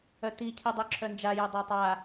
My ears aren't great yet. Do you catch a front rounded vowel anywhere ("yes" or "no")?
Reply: yes